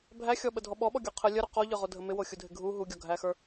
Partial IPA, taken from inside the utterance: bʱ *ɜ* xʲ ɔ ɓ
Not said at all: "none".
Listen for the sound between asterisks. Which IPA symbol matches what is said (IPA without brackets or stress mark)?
æ